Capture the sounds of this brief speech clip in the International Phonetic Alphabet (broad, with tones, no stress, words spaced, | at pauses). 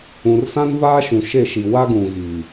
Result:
ũ˨rsã˦nvaː˦ʃũ˨ ʃe˦˨ʃi˨ wa˦ɡũ˨ɣi˨